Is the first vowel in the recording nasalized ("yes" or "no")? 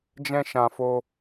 yes